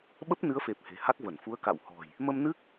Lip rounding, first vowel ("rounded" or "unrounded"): unrounded